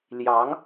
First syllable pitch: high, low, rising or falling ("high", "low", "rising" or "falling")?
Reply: rising